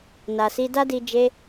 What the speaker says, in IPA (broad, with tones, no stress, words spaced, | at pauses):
na˨si˧da˦di˧ d͡ʒe˦